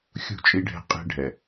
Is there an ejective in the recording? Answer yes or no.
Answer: yes